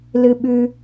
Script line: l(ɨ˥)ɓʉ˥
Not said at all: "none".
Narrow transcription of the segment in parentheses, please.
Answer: ɨ˥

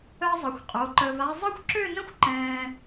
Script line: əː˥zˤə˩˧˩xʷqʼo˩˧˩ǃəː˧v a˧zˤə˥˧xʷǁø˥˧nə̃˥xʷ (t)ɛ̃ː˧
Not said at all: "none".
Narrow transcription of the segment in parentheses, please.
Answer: ǃ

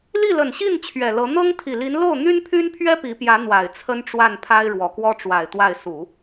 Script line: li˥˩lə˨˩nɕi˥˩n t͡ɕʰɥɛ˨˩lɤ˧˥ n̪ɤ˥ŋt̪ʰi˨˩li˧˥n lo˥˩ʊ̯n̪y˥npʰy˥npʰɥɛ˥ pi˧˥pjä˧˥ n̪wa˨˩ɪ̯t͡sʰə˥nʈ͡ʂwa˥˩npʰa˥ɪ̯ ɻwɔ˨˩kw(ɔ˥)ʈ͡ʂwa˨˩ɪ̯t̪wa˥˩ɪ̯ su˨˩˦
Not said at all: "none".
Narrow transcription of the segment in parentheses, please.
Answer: ɔ˥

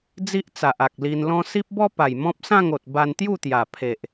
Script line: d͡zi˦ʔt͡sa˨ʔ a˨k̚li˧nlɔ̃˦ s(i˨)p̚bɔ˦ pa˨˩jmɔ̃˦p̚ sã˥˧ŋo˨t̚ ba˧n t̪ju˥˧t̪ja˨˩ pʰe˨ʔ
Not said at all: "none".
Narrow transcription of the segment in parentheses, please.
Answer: i˦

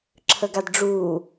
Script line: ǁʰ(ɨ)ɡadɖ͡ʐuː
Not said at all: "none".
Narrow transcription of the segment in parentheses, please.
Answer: ə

